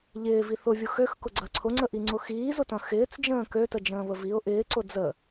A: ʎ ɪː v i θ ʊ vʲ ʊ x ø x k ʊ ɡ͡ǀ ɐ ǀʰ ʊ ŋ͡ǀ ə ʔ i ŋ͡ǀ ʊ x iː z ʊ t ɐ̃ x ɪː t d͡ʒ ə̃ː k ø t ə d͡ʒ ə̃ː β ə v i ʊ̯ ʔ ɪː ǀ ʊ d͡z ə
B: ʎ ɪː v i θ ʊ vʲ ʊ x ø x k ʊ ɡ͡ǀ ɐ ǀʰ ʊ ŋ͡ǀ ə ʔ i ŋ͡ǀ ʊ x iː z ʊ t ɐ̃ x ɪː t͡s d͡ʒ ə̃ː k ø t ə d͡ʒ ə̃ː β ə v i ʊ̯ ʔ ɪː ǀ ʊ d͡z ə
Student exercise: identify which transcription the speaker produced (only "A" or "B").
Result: B